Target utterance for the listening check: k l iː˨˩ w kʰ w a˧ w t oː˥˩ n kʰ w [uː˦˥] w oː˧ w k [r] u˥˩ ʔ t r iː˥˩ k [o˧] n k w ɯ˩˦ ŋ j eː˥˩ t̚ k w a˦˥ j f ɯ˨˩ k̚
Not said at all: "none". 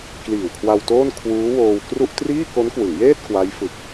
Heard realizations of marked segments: uː˦˥, r, o˦˥

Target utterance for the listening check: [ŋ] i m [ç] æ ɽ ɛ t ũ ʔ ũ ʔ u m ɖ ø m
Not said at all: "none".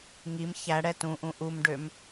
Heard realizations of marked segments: ŋ, ç

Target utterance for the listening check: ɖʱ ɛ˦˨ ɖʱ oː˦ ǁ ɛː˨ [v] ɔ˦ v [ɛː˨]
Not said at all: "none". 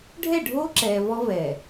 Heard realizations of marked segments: v, ɛː˨

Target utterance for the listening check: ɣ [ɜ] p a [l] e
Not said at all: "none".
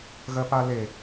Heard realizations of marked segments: ɜ, l

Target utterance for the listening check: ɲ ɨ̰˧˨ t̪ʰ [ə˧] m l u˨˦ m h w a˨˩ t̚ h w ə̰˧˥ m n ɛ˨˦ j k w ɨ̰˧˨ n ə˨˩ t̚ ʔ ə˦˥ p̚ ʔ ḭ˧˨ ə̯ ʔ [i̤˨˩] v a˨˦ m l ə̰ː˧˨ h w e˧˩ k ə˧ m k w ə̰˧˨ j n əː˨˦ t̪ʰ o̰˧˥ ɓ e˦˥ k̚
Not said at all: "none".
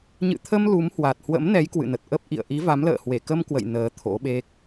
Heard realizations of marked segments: ə˧, i˨˦

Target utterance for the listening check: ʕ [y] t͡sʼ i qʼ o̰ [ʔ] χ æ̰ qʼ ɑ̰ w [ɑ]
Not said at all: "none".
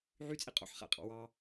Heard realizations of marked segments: y, ħ, ɑ

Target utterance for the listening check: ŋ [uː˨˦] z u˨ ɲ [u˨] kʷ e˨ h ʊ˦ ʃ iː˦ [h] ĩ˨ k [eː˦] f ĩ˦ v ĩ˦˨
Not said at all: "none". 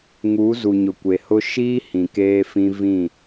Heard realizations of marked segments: uː˨˦, ʊ˨, h, eː˦

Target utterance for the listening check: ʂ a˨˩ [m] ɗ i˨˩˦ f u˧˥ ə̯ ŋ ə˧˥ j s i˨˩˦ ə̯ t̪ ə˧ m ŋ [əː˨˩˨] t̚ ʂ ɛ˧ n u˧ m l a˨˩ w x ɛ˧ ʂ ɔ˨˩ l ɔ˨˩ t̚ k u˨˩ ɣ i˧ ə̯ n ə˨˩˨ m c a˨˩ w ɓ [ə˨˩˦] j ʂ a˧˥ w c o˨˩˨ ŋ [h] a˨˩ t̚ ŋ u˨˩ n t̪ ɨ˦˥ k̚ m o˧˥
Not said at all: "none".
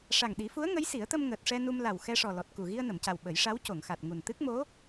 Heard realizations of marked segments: ŋ, əː˨˩, ə˨˩˦, x

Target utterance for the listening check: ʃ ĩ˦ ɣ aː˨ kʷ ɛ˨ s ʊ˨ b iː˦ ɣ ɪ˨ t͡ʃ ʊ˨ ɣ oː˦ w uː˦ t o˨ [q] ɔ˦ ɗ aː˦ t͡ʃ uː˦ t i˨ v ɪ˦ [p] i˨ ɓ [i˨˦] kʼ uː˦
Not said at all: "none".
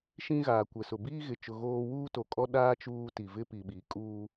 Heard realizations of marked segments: kʼ, p, i˨˦

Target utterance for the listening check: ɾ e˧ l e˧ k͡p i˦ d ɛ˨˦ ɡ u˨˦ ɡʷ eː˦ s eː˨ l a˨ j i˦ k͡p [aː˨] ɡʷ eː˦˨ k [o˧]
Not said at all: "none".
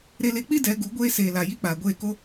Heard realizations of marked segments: aː˨, o˧

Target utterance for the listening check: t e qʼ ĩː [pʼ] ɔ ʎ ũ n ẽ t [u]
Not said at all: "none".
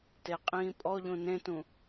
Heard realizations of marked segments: pʼ, ũ

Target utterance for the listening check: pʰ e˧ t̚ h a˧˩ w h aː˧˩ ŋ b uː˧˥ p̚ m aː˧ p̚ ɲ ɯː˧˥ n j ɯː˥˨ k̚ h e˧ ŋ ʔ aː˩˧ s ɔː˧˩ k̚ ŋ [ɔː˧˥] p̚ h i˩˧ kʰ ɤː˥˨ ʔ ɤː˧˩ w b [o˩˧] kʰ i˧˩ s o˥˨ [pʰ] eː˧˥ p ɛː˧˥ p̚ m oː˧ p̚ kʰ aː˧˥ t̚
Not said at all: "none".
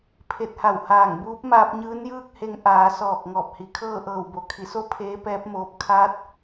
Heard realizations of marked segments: ɔː˧˩, o˩, pʰ

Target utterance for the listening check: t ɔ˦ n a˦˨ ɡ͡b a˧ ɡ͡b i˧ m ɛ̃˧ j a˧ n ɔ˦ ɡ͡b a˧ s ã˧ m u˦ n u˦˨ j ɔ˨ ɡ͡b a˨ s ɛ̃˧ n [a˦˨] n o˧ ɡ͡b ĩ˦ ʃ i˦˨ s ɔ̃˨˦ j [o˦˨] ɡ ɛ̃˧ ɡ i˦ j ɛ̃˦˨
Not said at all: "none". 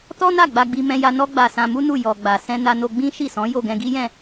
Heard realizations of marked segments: a˧, o˦˨

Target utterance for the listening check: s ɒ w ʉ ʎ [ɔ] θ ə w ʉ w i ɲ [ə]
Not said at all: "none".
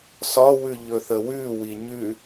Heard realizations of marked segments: ɵ, ʉ

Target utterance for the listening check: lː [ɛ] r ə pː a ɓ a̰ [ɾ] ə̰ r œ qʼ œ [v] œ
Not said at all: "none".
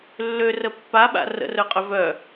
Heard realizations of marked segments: ø, r, v

